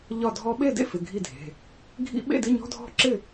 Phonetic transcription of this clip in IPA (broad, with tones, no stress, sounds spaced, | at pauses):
ʎ ɒ˥˨ dʱ ɔ˦˥ ɓ e˥˨ d ḛ˦˥ f ɪ˩˧˩ ɡʱ i˥˨ dʱ e̤˩˧˩ | ɡʱ ḭ˦˥ ɓ ḛ˥˨ d ɪ˧˥˧ ɲ ɔ̤˧˥˧ dʱ ɔ̤˥˨ ǁ ɪ˥˨